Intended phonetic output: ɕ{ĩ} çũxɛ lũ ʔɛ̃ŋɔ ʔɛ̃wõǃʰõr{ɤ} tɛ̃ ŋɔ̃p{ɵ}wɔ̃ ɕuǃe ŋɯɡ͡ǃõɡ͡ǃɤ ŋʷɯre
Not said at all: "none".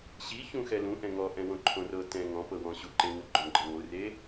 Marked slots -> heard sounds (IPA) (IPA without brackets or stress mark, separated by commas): i, ɤ, ɤ